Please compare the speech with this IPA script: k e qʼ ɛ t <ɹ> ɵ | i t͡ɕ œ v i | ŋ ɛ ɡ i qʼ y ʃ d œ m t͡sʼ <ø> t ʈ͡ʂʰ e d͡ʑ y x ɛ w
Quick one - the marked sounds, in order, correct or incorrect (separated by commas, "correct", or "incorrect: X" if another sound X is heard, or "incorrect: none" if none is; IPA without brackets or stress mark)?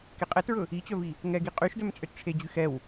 correct, correct